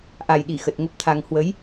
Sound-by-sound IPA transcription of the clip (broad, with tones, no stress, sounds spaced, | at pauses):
ʔ a˨˩ j ɗ i˧˩ x ə˨˩ t̚ ŋ ə˦˥ p̚ t̪ʰ a˧ ŋ h w ə˨˦ j